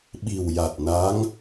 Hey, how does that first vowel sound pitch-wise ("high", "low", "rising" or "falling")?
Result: low